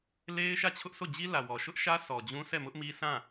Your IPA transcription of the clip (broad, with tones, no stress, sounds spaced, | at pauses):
l e˦ ɪ̯ ʃ ä˦˨ t͡ɕʰ ʊ˦ ʔ s o˦˨ d͡ʑ i˦ l ä˨ w ɔ˨ ʃ ʊ˦ ʔ ʃ ä˦ sʰ ɔ˨ d͡ʑ ũ˦ s ɛ˦˨ m ʊ˦ ʔ m i˦ s ã˦˨